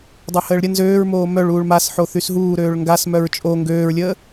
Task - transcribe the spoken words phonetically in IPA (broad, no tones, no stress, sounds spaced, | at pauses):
dˤ œ h əː ɭ ɾʲ ə n z øː ɹ m oː m œ ɭ uː ɭ m a s ħ o θ y s ɦ uː ɾ øː ɭ ŋ ɡ a s m œ ɹ t͡ʃʼ o ŋ ɡ øː ɹ lʲ əː